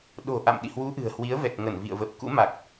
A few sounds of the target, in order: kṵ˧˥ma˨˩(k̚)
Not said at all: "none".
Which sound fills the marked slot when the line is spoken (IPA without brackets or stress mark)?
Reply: k̚